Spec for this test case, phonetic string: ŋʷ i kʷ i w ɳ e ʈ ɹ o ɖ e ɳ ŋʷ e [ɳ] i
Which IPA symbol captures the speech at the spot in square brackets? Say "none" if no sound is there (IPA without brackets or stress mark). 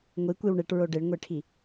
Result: ʈʰ